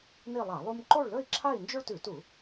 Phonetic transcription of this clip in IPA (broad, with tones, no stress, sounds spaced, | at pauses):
n i˥˧ lˠ a˧˩˧ lˠ u˥ m ǃ o˥˧ ɭ l ɵ˥˧ i̯ ǁʰ a˥˧ i̯ n d͡ʒ ɵ˥ ɭ t ʉ˧˩˧ t u˧˩˧